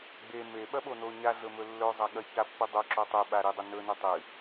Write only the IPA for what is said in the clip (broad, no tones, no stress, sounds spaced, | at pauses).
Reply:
ɡ͡b e m e ɓ ɐ ɓ o n o ɲ a ɮ ɵ m ɵ lː ɵ zˤ a ɠ ɐ ç a pː ɨ dˤ ɵ ǁ o tˤ ʉ ɓ a ɾ i dˤ ɐ n ɵ n ɨ tˤ ɨ